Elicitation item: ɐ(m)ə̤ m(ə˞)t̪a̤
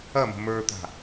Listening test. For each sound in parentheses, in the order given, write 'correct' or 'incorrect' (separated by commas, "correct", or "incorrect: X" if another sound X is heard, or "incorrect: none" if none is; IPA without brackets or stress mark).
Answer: correct, correct